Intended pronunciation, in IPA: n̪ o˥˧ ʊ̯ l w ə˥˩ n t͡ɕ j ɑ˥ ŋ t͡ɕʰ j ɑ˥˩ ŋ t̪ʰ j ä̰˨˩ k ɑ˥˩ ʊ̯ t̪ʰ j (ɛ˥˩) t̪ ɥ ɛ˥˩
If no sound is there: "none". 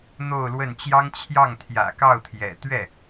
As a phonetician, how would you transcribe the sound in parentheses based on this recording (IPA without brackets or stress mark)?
ɛ̰˨˩